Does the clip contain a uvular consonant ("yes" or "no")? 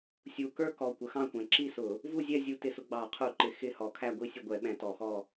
yes